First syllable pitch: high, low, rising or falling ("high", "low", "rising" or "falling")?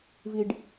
low